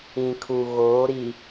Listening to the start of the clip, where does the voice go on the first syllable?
low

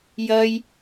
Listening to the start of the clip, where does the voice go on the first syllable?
high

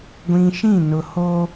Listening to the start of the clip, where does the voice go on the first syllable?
low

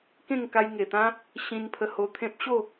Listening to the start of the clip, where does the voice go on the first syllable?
falling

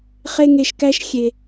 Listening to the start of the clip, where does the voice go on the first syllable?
high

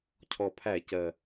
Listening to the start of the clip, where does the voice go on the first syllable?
low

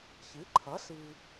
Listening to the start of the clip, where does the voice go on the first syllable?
rising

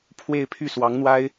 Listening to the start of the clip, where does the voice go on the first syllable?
falling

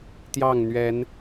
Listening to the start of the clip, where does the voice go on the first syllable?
falling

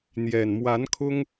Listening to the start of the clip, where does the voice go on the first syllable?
low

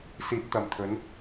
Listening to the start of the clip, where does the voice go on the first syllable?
rising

